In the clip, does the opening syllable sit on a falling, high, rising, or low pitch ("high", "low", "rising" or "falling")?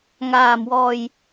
low